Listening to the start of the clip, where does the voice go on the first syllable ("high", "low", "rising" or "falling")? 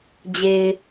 low